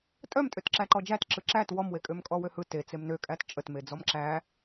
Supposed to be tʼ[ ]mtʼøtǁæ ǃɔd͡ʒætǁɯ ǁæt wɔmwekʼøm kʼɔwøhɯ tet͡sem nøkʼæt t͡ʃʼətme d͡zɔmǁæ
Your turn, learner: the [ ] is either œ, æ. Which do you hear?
œ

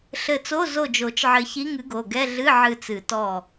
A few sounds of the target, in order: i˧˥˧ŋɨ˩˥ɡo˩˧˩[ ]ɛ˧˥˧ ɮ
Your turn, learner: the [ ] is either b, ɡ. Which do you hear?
ɡ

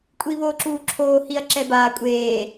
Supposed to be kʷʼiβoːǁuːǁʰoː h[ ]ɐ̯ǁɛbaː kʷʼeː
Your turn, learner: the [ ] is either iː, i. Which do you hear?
i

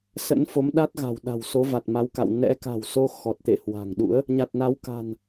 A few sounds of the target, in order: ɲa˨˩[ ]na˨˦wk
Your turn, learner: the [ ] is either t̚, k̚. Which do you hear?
t̚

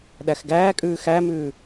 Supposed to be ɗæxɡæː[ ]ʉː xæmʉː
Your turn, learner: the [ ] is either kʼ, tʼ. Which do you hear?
kʼ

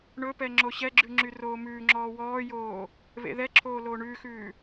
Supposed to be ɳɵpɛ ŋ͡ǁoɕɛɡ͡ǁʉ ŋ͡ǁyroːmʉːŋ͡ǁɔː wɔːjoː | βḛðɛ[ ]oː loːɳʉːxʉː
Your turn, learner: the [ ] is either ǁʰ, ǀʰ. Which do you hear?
ǁʰ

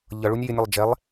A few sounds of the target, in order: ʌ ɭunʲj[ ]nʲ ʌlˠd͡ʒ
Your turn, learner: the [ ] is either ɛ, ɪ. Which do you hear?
ɪ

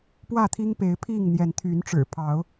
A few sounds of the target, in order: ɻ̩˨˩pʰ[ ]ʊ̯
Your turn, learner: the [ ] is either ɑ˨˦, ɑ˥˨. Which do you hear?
ɑ˨˦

